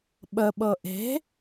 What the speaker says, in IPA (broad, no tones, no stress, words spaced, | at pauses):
ɓəɓɤ ʔe̤